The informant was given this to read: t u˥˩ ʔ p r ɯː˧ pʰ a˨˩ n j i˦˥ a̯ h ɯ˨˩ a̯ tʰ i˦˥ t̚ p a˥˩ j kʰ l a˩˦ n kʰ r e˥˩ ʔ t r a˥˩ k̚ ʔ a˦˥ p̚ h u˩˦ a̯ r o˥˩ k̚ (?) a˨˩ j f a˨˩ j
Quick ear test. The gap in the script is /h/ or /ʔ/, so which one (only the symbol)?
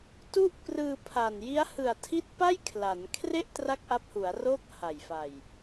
h